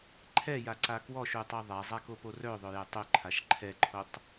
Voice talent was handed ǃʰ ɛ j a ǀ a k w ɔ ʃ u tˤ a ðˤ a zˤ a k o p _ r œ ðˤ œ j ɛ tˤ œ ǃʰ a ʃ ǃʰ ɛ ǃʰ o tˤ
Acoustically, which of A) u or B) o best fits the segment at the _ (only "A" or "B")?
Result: B